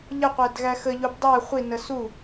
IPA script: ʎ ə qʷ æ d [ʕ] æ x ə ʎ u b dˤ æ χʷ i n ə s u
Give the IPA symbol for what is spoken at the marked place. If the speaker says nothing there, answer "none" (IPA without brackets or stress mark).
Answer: ɣ